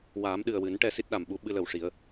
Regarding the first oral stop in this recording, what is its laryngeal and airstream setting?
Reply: implosive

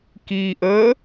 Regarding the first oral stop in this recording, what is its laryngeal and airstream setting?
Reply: plain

